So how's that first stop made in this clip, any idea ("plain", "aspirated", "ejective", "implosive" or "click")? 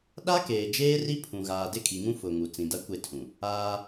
implosive